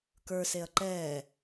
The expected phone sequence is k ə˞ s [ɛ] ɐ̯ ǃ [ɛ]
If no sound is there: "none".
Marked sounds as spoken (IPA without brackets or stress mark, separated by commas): e, ɛ